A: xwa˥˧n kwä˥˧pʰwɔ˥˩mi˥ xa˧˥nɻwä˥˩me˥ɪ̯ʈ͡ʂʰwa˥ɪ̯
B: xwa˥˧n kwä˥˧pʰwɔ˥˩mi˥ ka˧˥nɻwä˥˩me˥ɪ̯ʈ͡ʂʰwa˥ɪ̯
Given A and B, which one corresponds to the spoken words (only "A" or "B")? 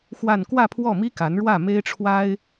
B